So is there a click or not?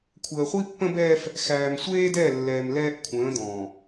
no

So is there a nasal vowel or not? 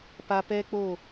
no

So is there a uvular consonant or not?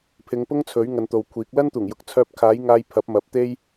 no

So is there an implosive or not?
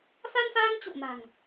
no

